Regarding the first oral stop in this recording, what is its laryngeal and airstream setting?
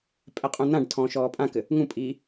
ejective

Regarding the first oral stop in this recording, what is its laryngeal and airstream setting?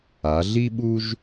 implosive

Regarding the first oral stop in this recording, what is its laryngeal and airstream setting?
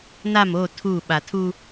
aspirated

